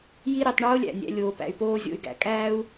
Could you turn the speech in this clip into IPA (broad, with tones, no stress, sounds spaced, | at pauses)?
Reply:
j i˦ ɾ i˧ tˤ ɳ oː˦ lʲ æ̰˨ nʲ æ̰˧ lʲ oː˨ p æ̰˨ y̯ p oː˧ zʲ o̰˨ y̯ ɡ æ̰˨ kʼ æː˦ u̯